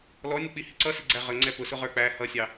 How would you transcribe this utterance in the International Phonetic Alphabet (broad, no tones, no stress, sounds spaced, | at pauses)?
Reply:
l ɔ nʲ ə k͡p i h ɪ ǀ ʌ s ɪ ɡ͡ǀ æ ʁ ə ŋ͡ǀ ɛ p ʊ s ʊ ʁ ə˞ k͡p æ h ʌ sʲ ɑ